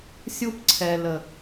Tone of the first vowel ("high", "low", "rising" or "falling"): high